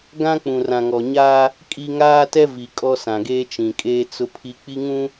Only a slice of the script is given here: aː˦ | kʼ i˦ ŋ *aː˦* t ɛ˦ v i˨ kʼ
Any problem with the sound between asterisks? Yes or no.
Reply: no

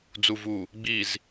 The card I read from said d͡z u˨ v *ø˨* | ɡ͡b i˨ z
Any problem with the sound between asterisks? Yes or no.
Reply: yes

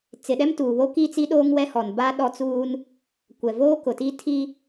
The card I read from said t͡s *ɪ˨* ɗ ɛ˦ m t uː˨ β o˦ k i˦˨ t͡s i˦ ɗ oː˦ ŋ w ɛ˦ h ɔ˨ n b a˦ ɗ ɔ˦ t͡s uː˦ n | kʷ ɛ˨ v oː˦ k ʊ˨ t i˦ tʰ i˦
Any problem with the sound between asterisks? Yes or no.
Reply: no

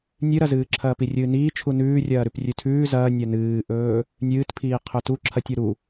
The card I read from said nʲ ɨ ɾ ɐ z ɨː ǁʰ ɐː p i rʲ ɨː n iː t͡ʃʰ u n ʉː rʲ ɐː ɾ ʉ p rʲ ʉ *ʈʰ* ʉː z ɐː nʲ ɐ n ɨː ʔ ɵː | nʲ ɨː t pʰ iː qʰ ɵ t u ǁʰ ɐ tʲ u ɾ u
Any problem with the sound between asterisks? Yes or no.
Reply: yes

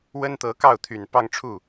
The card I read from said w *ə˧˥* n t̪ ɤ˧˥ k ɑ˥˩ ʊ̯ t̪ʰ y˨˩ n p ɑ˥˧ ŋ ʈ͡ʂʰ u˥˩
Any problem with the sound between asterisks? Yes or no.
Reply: yes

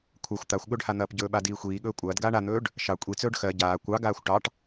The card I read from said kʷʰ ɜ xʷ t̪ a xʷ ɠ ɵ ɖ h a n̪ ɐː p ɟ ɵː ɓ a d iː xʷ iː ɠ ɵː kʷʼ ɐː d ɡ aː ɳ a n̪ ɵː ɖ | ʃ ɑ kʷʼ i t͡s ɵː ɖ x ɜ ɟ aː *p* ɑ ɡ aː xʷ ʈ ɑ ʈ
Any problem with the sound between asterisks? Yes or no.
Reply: yes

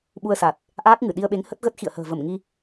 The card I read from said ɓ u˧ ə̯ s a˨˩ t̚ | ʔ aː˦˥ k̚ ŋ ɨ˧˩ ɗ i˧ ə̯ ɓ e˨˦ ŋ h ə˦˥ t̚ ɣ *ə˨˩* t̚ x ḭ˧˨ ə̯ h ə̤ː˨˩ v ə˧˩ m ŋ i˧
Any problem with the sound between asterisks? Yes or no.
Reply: yes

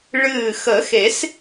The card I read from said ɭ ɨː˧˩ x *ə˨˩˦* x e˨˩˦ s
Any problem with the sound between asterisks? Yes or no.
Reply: no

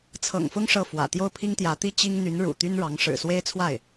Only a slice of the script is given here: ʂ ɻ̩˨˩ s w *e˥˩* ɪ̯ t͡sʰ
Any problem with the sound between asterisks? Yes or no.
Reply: yes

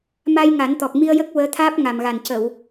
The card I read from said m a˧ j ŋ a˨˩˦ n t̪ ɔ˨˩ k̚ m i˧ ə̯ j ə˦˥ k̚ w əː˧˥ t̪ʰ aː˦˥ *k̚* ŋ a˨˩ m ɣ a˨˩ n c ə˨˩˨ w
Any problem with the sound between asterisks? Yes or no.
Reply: yes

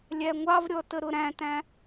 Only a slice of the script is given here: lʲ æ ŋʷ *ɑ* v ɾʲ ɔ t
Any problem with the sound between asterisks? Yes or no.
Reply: no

